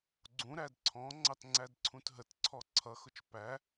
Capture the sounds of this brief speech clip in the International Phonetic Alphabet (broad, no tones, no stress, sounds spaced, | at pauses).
ɡ͡ǀ ũ ɾ æ d ǀʰ ɔ̃ ŋ͡ǀ ɑ t ŋ͡ǀ æ d ǀʰ ũ t ɦ ə t ǀʰ ɔ ǀʰ ʌ x ʊ t͡ʃ p æ